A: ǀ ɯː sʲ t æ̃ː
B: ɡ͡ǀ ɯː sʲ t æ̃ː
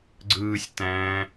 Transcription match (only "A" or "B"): B